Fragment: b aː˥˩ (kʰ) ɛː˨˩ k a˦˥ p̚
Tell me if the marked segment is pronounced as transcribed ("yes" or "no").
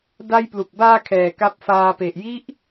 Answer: yes